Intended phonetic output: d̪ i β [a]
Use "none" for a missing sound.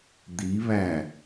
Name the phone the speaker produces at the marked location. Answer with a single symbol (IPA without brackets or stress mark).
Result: æ